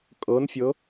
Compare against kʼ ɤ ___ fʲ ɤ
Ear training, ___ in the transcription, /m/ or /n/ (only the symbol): n